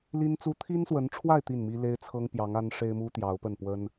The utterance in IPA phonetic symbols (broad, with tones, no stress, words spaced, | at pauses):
li˥nt͡su˥ t̪ʰi˥nswə˧˥nʈ͡ʂʰwa˥˧ɪ̯ t̪i˥˩nmi˥ le˥ɪ̯t͡sʰɤ˥ŋpjɑ˧˥ŋ a˥nʂe˥ɪ̯mu˥ t̪jɑ˧˥ʊ̯pə˥˩n pwə˥n